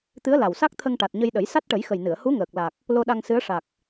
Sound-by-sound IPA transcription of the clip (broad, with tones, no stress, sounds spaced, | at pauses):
t̪ ɨ˧˥ ə̯ l a˨˩ w s a˦˥ k̚ t̪ʰ ə˧ ŋ ʈ a˨˩ t̚ ɲ ə˧ j ɗ ə˨˩˦ j s a˦˥ t̚ ʈ ə˨˩˦ j x ə˨˩ j n ɨ˨˩˨ ə̯ h u˧˥ ŋ əː˨˩ k̚ l a˨˩ k̚ | l o˧ ɗ a˧ ŋ s ɨ˧˥ ə̯ ʂ a˨˩ k̚